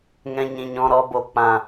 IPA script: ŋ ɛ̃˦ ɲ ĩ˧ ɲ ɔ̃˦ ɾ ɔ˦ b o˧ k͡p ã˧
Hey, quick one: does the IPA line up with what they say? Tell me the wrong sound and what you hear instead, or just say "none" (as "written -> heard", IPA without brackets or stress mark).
none